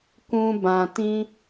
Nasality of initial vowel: nasal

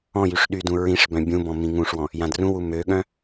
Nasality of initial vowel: nasal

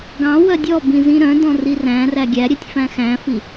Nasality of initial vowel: nasal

